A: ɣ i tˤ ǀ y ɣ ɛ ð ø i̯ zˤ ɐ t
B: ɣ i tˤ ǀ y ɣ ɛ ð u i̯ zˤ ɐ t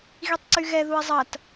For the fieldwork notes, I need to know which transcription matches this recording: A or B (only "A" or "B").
B